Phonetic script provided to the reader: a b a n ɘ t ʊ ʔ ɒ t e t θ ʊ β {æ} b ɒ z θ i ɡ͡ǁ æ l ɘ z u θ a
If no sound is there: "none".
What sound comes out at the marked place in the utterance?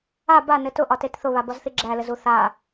a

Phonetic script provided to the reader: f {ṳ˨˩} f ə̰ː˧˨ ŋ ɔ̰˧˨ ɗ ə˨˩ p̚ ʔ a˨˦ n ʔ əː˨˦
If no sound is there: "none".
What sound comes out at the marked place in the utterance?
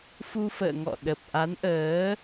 u˧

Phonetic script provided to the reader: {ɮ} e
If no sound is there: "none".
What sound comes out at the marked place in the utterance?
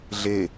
ɮ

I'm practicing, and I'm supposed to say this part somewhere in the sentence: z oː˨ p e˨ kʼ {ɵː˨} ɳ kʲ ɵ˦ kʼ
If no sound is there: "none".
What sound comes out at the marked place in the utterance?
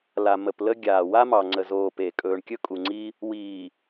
ɵː˨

